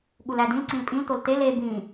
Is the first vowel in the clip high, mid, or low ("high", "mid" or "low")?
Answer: high